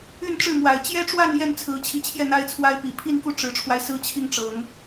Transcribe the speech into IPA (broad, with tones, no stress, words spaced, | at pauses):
y˥˧n ʈ͡ʂɻ̩˥˩mwa˨˩ɪ̯ t͡ɕjɛ˥ʈ͡ʂwa˥˧n jɛ˥˩nt͡sʰɹ̩˧˥t͡ɕʰi˧˥t͡ɕʰjɛ˥˩ n̪a˥ɪ̯t͡sʰwa˥ɪ̯pi˨˩ pʰi˥˧nku˥˩ ʈ͡ʂɻ̩˧˥ʈ͡ʂʰwa˧ɪ̯sɹ̩˥t͡ɕʰi˥˩ŋ ʈ͡ʂɤ˨˩˦ŋ